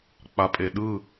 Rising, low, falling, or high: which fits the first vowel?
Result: low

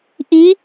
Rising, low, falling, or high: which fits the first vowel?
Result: rising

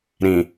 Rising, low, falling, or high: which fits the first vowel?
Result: low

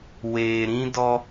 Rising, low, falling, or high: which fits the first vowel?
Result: low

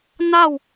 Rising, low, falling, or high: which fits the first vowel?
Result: falling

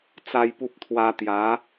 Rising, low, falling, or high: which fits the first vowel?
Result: high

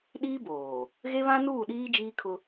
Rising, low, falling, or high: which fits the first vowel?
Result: high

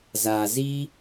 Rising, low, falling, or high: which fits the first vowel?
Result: low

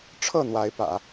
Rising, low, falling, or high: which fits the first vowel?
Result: falling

